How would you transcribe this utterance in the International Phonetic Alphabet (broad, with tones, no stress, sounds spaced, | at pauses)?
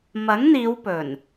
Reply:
m ɐ˨˥ ŋ n̪ iː˨˧ w p ɵ˨˩ n